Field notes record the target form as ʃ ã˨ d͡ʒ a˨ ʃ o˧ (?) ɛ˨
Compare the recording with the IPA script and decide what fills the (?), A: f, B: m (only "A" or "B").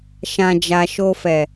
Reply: A